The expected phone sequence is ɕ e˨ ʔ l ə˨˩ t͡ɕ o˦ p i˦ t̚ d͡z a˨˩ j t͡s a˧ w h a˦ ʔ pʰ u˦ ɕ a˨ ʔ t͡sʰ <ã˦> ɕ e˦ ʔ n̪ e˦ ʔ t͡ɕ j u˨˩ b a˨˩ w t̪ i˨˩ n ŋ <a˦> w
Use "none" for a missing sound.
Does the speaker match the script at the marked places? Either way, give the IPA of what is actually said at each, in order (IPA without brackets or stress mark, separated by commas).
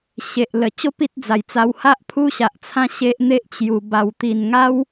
ã˦, a˦